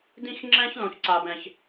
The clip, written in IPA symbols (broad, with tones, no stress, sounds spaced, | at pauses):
d ĩ˥ x ŋ͡ǁ ɛ̃˥ ç l õ˥ ç ǀ a˥ b ɛ̃˥˧ ç